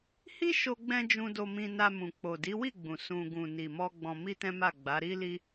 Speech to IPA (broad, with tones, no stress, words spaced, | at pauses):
hi˦ʃo˧ɡ͡bɛ̃˧ d͡ʒũ˧do˧mĩ˧ na˧mũ˨k͡po˨ di˨˦wi˦˨ɡ͡bũ˨ sũ˧ ɡũ˨ni˨mɔ˧ ɡ͡bɔ̃˧mi˦tɛ̃˦ma˦˨ ɡ͡ba˨˦ ɾi˦li˦